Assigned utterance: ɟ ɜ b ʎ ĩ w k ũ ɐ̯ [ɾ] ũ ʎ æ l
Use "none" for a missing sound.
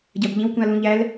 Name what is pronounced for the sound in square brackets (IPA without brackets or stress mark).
l